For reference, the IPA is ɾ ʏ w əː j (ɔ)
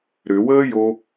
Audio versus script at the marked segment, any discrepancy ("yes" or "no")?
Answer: yes